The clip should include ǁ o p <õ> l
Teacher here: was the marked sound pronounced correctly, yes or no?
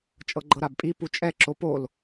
no